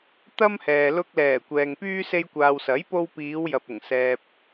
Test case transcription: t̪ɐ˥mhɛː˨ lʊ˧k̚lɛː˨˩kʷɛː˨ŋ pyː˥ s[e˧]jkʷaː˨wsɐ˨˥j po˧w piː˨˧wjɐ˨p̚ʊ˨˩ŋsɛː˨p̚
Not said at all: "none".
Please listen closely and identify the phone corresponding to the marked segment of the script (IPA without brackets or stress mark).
e˧